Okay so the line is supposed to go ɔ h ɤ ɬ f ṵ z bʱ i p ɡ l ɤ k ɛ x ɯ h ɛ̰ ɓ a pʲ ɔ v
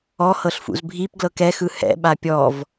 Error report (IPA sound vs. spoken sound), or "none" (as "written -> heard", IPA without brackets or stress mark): none